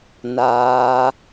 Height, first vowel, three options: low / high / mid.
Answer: low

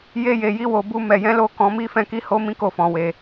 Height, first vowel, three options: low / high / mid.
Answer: mid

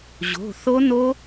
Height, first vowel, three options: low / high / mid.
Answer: mid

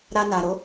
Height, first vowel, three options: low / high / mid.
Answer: low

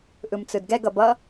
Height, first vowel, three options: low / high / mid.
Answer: high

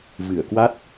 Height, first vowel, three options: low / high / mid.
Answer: high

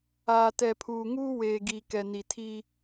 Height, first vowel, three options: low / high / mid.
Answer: low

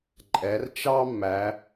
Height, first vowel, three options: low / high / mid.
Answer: mid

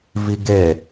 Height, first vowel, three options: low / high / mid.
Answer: high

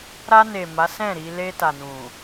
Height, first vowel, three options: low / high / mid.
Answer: low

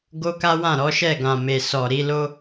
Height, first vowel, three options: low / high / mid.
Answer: mid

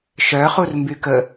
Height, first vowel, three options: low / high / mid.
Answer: mid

